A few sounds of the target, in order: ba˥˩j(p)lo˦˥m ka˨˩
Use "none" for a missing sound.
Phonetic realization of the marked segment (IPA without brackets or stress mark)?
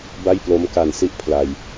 p